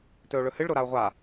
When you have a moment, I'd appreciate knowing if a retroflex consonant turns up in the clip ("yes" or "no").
yes